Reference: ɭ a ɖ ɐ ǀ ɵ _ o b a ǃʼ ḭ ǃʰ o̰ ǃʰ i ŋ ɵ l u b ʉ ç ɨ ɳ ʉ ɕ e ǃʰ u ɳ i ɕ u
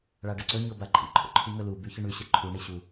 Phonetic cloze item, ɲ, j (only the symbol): ɲ